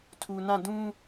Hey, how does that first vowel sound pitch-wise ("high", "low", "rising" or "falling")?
low